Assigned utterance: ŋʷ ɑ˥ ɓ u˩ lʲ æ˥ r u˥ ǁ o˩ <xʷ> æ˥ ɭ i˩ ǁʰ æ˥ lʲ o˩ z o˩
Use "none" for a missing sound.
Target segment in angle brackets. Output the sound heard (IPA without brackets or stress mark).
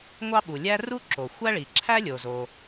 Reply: xʷ